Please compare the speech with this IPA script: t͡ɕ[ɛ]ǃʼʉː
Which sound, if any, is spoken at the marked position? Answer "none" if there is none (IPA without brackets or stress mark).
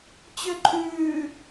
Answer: ø